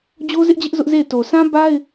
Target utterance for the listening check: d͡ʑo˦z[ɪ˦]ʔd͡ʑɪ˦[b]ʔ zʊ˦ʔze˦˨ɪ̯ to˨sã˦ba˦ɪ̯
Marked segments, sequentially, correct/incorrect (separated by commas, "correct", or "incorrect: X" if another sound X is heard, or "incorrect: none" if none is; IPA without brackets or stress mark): correct, incorrect: none